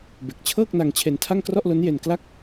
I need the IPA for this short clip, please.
be˨˩k̚t͡ɕʰɤː˥˩k̚na˧ŋ t͡ɕʰe˧ntʰa˥˩ŋ krɔ˥˩ʔlo˦˥nje˧n kla˥˩k̚

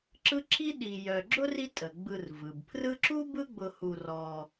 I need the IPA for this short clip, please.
ǁɯ˥ ǁʰi˥ɗi˨ jœ˨ɡ͡ǁʊ˥ri˦ tʼə˩ɡ͡bɯ˨r vɯ˩bpʰrɯ˦ǁu˥ bɯ˦ɡ͡bʊ˨hu˨ rɔ˨

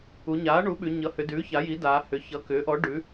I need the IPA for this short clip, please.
u˩˧ɲaː˩˥ɳu˩˥ɓʉ˩˧ ɲʌ˩˥hʏ˩˧dʉː˩˥ ça˩˥ji˩˥daː˩˧ hʏː˩˧çʌ˩˧kʏː˩˥ʔɔ˩˥ ɖʉ˩˥

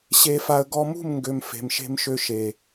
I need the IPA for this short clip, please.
ɕe˧fa˧ə̯ ɡɔ˧mṳ˦˨mŋɡø˨m fe̤˨mʃe̤˧mʃø˧ ʃe˨

